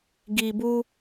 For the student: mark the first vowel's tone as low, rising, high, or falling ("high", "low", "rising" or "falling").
low